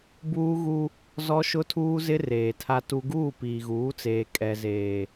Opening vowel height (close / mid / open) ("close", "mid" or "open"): close